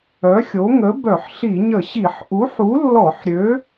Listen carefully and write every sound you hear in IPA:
œ˨˥xʲo˨˥ ŋə˨˥ bœ˧˩˧ħɬi˧˩˧ɲə˧˩˧ ɕi˧˩˧ħ ʔu˨˥ħu˨˥lːɔ˧˩˧ħ ɾʲø˨˥

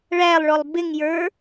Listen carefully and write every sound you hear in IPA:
ɭælˠɭɔlˠ bɪŋjə˞

